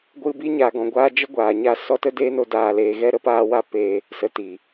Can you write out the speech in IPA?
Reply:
ɡʷɨ˧bi˦ ɲa˨ɡɔ̃˨ɡʷaː˧ d͡ʒə˦ɡʷaː˨ɲa˦˨ sɔ˧tə˦deː˦no˧ daː˧leː˧ ɣɛ˦ ɾə˧paː˧wa˦peː˧ | sə˨tiː˨

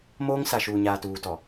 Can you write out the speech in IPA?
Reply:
moː˦ŋ sa˨ʃuː˨ɲaː˨ tuː˨tɔ˨

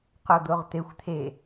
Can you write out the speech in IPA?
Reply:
qod̪oʁt̪exʷ t̪ʰe

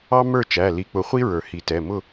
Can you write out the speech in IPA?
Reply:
ɑ˥ mə˞˥˨t͡ʃæ˩˧˩ li˨˦k͡pʊ˨˦ χʷi˥ ɹə˞˨˩˦hi˨˩˦ tɛ˩˧˩ mʊ˥˨

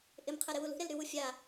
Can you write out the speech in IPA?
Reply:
ʔɪmqʰɛɾɪwul ṳɾelɾywu fʲa

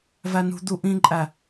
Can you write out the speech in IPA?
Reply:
vænṳd̪u ʔĩǃʼæ

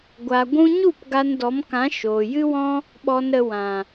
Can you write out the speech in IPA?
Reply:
ɡʷa˨ ɡʷũ˧ɲu˦˨p ɡa˧ndɔ˨˦mkã˨˦ ʃoː˨jɨ˦wɔ̃˦ | ɓɔ˨nɾə˨ wã˨

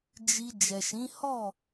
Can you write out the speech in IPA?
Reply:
d͡ʒi˧ d͡ʒɛ˨ʃĩ˨˦hɔ˦˨

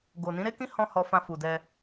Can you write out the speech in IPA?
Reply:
ɡo˨nĩ˨˦ɾe˦kĩ˦ hɔ̃˦hɔ˧fã˧ fu˨dɛ˧

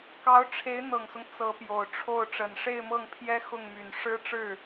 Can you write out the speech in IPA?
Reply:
kɑ˧˥ʊ̯ʈ͡ʂʰe˧˥ɪ̯n̪ɤ˨˩ŋsʊ˦ŋ t͡sɤ˧˥pjo˨˩ʊ̯ʈ͡ʂʰo˥˩ʊ̯ ʈ͡ʂə˨˩nʂe˥˧ɪ̯mɤ˥˩ŋpʰjɛ˥ xʊ˥˩ŋmy˨˩n ʂɻ̩˥ʈ͡ʂɻ̩˥˩

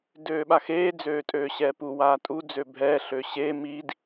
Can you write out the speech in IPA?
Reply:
døːɓaxeː d͡zøːtʼøːɕɛːpu waːtʼu d͡zøbʱɛː ɬøɕeː miːd

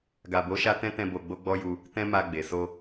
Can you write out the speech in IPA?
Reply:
ɡa˨bo˨˦ʃa˧ tɛ̃˦tɛ̃˧ bo˧ɡ͡bo˦ɡ͡bɔ˦ju˧ | tɛ̃˦ma˧ɡ͡be˨so˧

